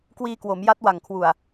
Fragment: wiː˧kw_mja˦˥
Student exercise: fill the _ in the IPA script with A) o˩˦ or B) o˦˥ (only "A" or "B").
A